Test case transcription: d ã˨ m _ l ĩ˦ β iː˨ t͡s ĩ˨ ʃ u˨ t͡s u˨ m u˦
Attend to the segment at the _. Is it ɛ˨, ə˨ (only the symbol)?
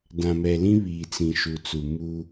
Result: ɛ˨